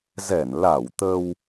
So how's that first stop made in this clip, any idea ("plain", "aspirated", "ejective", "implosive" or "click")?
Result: plain